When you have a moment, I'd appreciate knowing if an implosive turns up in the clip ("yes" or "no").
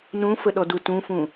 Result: yes